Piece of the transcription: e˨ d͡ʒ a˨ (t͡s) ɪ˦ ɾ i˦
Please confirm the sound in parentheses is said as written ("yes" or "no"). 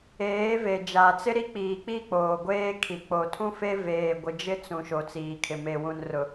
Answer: yes